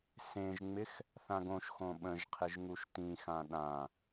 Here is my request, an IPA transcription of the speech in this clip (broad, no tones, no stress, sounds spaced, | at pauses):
s ẽ ʒ ŋ͡m ɪ x | θ ã ɡ õ ʃ x õ ɓ ə̃ ʒ qʰ ɪ ʒ ŋ u ʃ t ĩ x ã ɗ ã